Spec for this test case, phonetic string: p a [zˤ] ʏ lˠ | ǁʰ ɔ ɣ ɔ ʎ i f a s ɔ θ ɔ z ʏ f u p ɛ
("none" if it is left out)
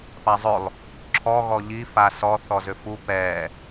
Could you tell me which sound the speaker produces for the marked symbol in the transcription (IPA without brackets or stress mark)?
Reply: zˤ